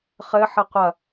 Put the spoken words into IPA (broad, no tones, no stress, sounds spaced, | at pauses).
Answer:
χ ɘ ħ ɘ qʷ ɐ